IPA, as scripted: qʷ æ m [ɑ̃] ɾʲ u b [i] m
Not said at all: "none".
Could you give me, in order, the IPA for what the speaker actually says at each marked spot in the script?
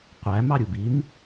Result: ɑ, i

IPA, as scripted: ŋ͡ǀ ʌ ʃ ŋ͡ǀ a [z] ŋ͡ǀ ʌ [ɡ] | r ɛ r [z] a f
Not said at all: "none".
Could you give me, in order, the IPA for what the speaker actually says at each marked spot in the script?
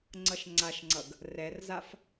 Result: ʃ, ɡ, z

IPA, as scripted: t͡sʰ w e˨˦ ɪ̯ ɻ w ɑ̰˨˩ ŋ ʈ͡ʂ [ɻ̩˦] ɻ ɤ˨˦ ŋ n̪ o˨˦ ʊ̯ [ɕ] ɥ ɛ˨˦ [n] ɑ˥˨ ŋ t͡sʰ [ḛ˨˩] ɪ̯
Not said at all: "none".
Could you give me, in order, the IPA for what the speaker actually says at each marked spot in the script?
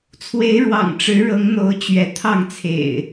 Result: ɻ̩˨˦, t͡ɕ, t̪ʰ, ḛ˨˩

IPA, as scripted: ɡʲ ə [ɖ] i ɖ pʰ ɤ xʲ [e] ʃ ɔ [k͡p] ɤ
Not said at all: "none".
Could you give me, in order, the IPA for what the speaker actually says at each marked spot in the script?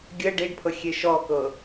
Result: ɖ, e, k

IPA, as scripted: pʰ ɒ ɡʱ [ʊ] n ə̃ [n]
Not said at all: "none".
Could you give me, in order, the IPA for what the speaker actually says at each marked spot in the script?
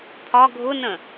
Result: ʊ, none

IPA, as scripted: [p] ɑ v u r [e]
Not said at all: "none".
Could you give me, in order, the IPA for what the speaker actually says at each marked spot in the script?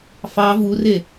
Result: f, e

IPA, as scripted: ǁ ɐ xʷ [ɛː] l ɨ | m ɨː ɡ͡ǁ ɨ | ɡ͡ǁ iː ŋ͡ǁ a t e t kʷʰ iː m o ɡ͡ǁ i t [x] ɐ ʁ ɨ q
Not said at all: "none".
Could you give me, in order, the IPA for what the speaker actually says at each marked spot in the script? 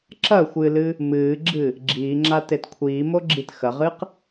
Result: ɨː, x

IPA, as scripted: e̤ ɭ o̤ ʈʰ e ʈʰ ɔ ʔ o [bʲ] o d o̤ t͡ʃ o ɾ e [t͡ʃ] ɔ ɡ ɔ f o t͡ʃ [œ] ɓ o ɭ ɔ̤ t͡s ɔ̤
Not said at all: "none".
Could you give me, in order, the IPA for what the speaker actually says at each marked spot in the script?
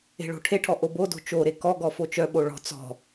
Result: b, k, œ

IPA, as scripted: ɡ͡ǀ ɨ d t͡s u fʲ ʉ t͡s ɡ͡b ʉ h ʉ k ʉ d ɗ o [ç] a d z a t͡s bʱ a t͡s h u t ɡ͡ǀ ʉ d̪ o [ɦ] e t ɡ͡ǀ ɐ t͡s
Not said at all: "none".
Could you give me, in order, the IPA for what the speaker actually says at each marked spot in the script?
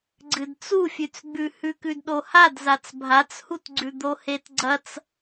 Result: h, h

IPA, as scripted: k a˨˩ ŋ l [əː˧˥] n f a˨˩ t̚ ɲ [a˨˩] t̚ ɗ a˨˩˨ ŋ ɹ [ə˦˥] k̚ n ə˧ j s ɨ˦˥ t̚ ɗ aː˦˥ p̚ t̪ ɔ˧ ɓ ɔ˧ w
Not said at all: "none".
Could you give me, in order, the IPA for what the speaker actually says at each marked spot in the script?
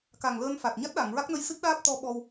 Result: əː˧, a˦˥, a˦˥

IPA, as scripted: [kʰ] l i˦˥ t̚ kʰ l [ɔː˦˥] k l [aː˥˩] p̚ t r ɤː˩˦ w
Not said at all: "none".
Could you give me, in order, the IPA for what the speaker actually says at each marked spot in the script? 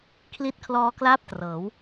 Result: kʰ, ɔː˦˥, aː˥˩

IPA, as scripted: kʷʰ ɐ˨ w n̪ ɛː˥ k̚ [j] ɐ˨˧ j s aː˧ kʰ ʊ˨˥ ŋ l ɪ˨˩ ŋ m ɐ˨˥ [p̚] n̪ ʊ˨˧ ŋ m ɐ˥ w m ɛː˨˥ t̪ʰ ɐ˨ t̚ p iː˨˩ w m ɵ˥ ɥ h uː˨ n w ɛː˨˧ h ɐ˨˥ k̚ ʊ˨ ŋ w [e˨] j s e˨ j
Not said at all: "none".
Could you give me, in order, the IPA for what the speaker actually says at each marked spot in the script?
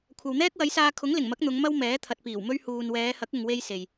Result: w, k̚, e˧

